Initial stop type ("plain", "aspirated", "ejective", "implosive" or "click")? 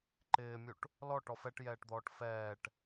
click